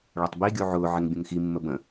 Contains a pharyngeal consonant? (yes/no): yes